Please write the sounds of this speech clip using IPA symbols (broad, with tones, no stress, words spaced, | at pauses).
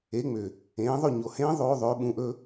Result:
e˨˥ŋ͡mʏ˨ | ẽː˨˥ðˤɵ˥˧ ɲo˨hẽː˦˥ ðˤoː˦˥ðˤɵː˨˥ɓũ˨˥ʔɵ˦˥